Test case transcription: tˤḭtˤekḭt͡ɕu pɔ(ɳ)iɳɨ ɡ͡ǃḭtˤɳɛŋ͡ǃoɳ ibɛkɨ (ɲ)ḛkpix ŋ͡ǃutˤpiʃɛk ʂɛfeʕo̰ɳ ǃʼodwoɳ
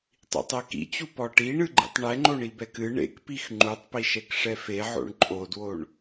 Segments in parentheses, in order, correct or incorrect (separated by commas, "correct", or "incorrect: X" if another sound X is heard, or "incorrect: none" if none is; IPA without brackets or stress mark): incorrect: ʈ, incorrect: ɳ